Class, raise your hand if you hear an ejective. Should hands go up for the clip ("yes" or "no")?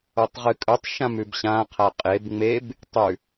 yes